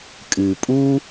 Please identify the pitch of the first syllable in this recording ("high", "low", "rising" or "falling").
low